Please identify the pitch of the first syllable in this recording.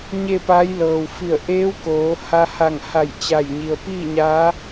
falling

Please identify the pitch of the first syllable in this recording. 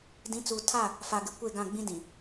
rising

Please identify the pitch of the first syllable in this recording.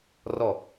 falling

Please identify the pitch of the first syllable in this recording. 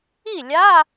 falling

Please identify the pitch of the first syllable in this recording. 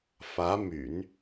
rising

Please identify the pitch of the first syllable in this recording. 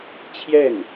falling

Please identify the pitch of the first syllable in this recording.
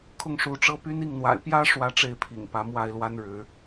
falling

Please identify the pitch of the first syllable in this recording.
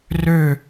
falling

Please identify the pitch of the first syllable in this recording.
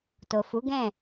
low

